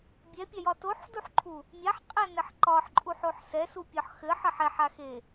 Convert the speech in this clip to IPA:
bʲ ɛ pʲ a j ɒ t o ħ d u ħ ǃʰ u | mʲ a ħ qʼ ɛ n ɘ ħ ǃ ɒ ħ ǃʼ u ħ o ħ s ɛ s u pʲ ɒ ħ x ɘ ħ ɘ ħ ɛ ħ a x e

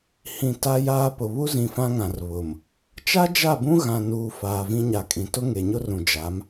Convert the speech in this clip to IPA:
h ĩ˨ t a˦ j aː˦ p ʊ˨ β u˦ z ĩ˨ f ã˦ ŋ ã˨ r β ʊ˨ m | t͡ʃ a˦ d͡ʒ a˦˨ b ũ˦ ɣ ã˨ n uː˨ f aː˨ v ĩ˦ ɲ a˨ kʼ ĩ˨ t ʊ˦ ŋ e˨ ɲ ʊ˦ r ũ˨ d͡ʒ a˨˦ m

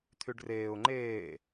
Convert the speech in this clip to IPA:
t̪ʰ y ɖ r eː ʊ̯ ŋ͡ǃ eː

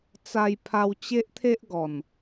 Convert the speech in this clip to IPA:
t͡s a˧ j pʰ a˧ w t͡ɕ e˦ ʔ t̪ʰ e˦ ʔ ɡ ɔ˨˩ n

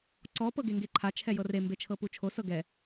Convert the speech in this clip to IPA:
ǀ ɔ p ɤ ɡ e ŋ ɡ e ǃʰ a t͡ʃʰ ɛ j ɤ r e m b e t͡ʃʰ ɤ p u t͡ʃʰ o s ɤ ɡ ɛ

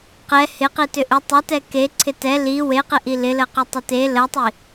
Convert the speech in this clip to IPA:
q ɛ h ɪ q i t ʏ ʔ ʏ tˤ ʏ t ɛ k e ǀʰ ɪ t ɛ l i w e q ɪ ʔ i l ɪ l ə q ʏ tˤ ə t e l ə tˤ i

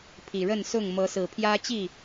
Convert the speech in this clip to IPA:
pʰ i˨˩ ɻ ə˥˨ n s ʊ˥˨ ŋ m ɤ˨˦ s ɹ̩˨˩ pʰ j ä˦ t͡ɕ i˥˨

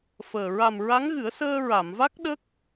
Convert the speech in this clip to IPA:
f əː˨˩ ɹ a˨˩ m ɹ a˧˥ ŋ ɣ ɨ˨˩˦ ə̯ s əː˧ ɹ a˨˩˨ m v a˦˥ k̚ ɗ ə˦˥ k̚

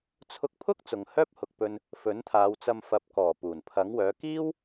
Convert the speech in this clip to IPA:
t͡sʰ ʊ˧ k̚ pʰ ʊ˥ k̚ t͡s ʊ˨ ŋ h œː˥ p̚ h ʊ˨ k̚ p ɵ˧ n | f ɵ˨˥ n t̪ʰ aː˨˧ w t͡s ɐ˧ m f ɐ˨˥ p̚ k ɔː˨˩ p uː˨˩ n pʰ ɐ˨˥ ŋ w œː˨˥ k iː˥ w

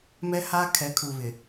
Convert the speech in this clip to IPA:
m ɛ˦ h aː˦ kʰ ɛ˨˦ kʰ u˨ β ɪ˨

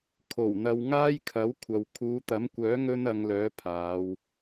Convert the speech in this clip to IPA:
kʰ o˨˩ w n̪ ɐ˨ w ŋ aː˥ j kʰ ɐ˨˥ w kʷʰ ɐ˨ w kʰ uː˨˧ t̪ ɐ˨˥ m kʷ œː˨˥ ŋ ɵ˥ n ɐ˨˧ ŋ l œː˨˥ pʰ aː˨˧ w

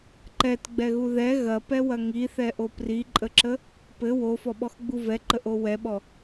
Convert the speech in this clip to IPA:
ǃ ɛ t ɡ͡b ɛ ɣ u ð ɛ ɣ ɐ p ɛ w ɐ ŋ i θ ɛ ʔ o p r i ǃʼ ə ǁ ə | p ɘ w o f ɔ ɓ ɔ x ɡ͡b u v ɛ ǃ ə ʔ o w ɛ ɓ ɔ

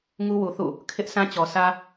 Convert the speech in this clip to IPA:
ŋ u˦ w u˨ θ ṵ˦˨ | kʰ ɪ˦ ʔ s ã˦ t͡ɕ ɔ˨ s ä˦

